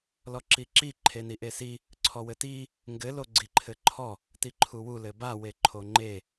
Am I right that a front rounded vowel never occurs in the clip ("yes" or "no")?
yes